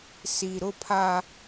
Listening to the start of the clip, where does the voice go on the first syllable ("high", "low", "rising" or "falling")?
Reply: low